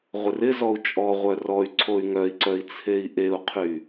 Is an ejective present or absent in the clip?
present